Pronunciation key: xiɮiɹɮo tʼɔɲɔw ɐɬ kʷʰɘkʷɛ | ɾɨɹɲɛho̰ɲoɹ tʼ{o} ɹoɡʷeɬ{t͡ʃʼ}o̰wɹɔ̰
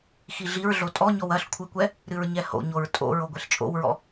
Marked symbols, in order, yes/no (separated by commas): no, yes